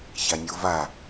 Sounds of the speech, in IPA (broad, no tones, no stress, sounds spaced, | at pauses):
ç a nʲ o v a